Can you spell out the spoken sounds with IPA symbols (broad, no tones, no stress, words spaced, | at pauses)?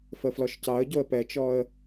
fəflɔʃcɑə̯ɟoə̯ pɛt͡ʃɔə̯